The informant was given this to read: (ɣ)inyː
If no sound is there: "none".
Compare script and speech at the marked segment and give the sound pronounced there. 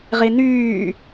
ʁ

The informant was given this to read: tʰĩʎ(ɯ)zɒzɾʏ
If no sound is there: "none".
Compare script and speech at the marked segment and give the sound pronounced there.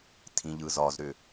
ɯ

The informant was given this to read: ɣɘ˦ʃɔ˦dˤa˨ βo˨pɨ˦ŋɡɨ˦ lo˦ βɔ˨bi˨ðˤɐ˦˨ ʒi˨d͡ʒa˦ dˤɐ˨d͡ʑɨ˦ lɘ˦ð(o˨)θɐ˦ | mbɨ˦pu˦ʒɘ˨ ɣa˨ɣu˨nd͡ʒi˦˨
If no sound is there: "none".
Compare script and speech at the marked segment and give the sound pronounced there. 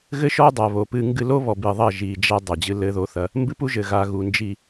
o˦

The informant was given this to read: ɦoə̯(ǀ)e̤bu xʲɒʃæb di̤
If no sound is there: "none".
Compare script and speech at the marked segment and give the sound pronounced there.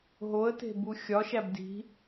t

